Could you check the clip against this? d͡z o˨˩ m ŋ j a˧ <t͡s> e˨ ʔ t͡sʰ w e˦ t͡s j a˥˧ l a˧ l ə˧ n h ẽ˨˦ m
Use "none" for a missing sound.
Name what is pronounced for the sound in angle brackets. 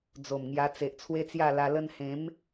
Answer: t͡s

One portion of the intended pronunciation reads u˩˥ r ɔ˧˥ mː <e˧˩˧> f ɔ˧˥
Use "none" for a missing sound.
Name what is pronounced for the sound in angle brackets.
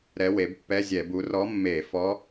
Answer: e˧˩˧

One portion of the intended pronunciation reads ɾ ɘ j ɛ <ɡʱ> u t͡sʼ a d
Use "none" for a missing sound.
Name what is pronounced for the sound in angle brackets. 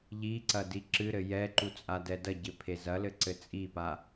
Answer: ǃ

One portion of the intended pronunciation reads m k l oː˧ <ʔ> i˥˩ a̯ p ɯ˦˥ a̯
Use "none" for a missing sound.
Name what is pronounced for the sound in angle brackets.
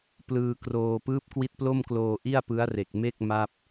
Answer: ʔ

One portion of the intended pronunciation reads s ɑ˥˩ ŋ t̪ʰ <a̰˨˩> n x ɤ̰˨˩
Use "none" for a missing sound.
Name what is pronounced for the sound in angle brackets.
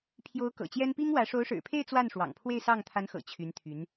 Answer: a˧˥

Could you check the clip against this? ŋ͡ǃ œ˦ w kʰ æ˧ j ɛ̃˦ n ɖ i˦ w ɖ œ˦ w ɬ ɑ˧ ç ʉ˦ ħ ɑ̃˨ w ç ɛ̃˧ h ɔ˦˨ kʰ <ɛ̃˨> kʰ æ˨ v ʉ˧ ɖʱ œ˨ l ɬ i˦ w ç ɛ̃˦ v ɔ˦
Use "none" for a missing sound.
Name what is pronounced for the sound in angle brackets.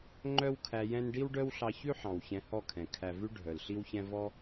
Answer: ɛ̃˨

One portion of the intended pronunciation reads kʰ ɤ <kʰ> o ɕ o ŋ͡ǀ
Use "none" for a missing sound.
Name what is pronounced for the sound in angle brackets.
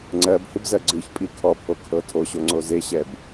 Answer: tʰ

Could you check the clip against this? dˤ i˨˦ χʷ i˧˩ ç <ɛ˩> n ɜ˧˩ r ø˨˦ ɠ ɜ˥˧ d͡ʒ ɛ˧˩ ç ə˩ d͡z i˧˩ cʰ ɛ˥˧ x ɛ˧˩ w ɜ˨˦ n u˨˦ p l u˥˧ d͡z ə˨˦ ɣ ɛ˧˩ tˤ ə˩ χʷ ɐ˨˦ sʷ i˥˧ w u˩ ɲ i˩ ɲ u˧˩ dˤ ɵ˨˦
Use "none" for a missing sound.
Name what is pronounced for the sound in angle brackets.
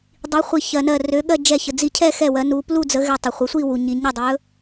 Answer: ɜ˩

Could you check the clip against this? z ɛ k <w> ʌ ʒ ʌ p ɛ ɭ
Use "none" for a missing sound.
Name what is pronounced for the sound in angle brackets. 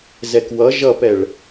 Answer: w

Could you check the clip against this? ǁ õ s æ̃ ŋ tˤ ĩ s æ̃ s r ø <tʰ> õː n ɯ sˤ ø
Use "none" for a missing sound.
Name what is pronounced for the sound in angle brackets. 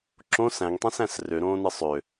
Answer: ɾ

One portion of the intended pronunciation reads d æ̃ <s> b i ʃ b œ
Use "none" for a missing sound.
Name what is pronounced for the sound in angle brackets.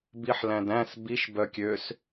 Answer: s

